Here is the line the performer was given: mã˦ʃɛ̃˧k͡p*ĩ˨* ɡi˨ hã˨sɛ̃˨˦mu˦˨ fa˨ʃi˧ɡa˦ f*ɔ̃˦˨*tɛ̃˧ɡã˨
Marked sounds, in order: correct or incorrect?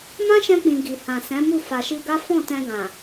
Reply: correct, correct

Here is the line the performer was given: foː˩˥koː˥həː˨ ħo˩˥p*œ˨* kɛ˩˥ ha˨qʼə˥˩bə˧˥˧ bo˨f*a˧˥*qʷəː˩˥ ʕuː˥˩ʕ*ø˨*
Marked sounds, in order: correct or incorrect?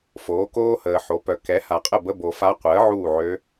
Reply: correct, correct, incorrect: ø˧˥

